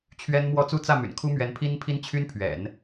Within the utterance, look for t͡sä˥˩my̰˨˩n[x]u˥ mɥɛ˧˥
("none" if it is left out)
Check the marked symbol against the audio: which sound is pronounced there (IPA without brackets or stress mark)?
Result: kʰ